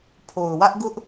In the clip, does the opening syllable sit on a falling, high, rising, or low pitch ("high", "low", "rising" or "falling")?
low